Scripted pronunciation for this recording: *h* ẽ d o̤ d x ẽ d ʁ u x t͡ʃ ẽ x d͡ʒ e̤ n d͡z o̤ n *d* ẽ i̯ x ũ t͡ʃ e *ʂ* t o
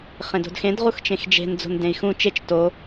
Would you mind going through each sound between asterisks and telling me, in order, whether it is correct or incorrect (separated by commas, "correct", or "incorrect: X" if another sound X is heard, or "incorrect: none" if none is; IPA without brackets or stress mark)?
incorrect: χ, correct, incorrect: t͡ʃ